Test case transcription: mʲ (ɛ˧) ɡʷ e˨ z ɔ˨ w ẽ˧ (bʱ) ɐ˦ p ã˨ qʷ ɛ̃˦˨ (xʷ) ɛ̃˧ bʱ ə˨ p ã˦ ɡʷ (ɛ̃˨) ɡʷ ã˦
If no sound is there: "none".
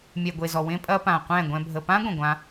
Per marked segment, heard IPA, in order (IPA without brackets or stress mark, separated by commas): ɛ˨, pʼ, ɡʷ, ɛ̃˨